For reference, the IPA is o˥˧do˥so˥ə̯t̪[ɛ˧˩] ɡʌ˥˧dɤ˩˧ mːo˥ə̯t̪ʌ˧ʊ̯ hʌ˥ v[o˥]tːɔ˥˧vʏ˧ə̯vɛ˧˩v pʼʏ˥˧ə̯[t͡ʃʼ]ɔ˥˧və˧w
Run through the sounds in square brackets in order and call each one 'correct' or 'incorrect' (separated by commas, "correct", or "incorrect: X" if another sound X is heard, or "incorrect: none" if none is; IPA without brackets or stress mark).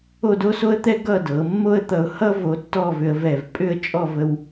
incorrect: ɛ˥, incorrect: o˧, correct